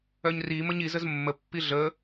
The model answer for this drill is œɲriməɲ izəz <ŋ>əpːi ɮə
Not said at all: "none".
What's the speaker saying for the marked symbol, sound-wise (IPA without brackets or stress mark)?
mː